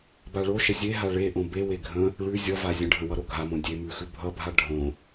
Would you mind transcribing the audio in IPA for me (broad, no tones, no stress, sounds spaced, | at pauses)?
b a ɭ o ʃ ə zʲ e ɦ a ɭ e ʔ õ b e w e ɡʱ ə̃ | ɭ ʉ zʲ ʌ v a zʲ ə̃ ɖʱ ə̃ w ʌ ɾ o ɡʱ a m õ dʲ e m ʉ x ʉ bʱ ʌ bʱ a ɖʱ õ